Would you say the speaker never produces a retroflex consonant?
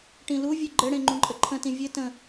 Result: no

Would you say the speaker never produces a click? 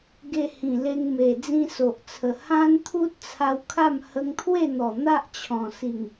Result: yes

